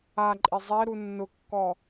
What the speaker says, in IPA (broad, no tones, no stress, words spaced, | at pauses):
aǃʼe zˤɛɾu nːʊkːɔ